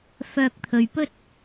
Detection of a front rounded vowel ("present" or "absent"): present